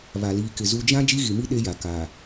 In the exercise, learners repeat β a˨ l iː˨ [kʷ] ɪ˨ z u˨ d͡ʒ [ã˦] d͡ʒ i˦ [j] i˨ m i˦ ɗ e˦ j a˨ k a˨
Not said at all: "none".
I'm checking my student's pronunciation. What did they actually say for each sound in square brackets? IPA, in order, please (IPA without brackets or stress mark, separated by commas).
k, ã˦, ɣ